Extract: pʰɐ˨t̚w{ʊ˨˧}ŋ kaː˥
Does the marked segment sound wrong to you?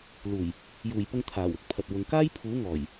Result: no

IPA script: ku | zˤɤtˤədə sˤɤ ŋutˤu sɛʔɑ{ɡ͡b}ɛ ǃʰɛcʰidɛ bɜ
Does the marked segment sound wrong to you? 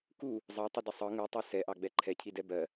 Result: no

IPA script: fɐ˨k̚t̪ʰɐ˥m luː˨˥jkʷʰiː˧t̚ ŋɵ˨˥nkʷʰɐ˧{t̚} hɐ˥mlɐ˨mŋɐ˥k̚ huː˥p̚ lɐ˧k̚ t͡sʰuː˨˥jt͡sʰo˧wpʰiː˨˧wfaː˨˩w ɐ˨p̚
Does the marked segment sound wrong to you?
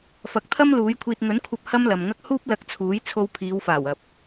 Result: yes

